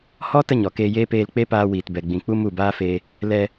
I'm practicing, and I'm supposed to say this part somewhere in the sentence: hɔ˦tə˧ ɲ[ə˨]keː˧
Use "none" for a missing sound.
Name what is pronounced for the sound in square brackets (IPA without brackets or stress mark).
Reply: ɔ˨